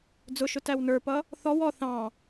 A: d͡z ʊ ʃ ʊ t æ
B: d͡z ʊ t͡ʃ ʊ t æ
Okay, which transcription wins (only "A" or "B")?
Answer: A